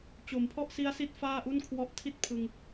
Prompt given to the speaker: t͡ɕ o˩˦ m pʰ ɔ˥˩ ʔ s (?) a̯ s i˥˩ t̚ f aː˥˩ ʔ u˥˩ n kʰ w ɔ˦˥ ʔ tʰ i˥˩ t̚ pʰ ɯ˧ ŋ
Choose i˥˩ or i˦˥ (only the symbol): i˦˥